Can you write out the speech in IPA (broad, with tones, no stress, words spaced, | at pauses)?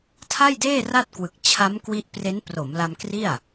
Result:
tʰa˥˩jdeː˥˩ ra˥˩t̚kwɯ˨˩k̚ t͡ɕʰa˦˥mkwi˦˥ʔpre˦˥n pro˩˦mla˧mkri˥˩a̯